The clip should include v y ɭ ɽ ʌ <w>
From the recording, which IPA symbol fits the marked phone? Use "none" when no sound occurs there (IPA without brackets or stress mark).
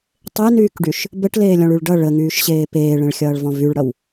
w